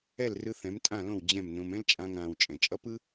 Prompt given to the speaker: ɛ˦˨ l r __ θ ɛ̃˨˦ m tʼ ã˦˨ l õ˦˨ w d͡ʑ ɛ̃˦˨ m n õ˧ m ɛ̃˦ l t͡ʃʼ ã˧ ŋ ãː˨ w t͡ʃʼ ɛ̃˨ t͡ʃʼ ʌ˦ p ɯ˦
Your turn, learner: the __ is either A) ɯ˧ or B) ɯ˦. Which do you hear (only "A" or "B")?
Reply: A